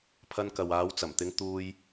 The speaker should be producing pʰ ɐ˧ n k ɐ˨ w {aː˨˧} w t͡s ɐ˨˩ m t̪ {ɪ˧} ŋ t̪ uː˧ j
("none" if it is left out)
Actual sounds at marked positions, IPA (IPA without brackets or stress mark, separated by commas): aː˨˧, ɪ˨˧